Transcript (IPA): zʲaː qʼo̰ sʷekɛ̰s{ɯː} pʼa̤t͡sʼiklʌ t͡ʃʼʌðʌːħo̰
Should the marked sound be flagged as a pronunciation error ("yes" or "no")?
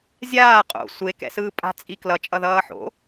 no